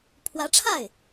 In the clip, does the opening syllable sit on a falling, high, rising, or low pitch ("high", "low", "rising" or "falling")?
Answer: rising